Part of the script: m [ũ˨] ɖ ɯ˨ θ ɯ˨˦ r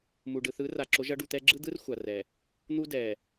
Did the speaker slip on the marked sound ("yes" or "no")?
yes